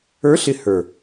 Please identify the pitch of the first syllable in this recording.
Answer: rising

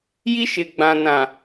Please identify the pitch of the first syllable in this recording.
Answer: high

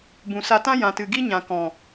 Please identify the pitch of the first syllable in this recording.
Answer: low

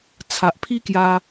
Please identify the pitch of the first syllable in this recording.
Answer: low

